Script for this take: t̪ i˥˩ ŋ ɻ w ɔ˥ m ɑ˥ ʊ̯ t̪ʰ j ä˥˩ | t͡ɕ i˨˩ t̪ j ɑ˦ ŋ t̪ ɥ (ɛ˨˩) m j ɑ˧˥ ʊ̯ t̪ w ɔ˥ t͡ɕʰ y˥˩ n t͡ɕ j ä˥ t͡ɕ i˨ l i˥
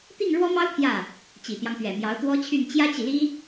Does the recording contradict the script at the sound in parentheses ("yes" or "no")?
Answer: no